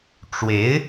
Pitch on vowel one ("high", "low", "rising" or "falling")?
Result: rising